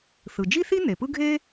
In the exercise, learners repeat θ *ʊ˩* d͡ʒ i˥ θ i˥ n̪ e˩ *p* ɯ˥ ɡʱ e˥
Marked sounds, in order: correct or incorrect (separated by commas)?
incorrect, correct